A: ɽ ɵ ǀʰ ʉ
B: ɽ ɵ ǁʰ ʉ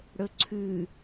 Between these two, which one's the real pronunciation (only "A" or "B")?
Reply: A